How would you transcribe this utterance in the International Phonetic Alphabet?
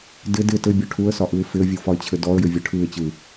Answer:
dɪ dɪ tɘbʲɔ ʈʰuə̯sɒʔɯɪ̯ fɪə̯vʲufɒɪ̯t͡ɕʰɘ dɔə̯jɘvʲɯ ʈʰɯɪ̯t͡ɕɯ

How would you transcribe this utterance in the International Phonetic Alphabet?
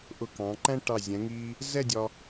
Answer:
ʔʊ˧˩kɑ̃˩˧ǃæ̃˥ʈɑ˧˩ zʲɛ̃˩˧ŋiː˧ | zɛ˥˧dʲɒ˧

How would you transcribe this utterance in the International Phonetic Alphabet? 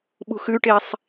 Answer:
ɓṳxʉʈesˤ

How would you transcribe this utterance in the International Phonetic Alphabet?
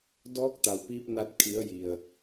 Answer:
dɔː˧˥k̚t̪a˩wpiː˧p̚na˧t̚ kʰi˩˧ə̯ji˩ə̯

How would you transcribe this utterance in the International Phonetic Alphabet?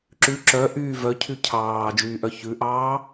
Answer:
ǁʉ ǁœʔyː vœcʰy cʰɑːd͡ʒyː ʔœçʉʔɑː

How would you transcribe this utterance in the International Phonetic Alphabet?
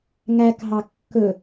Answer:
ŋækɦɑ kːɵ

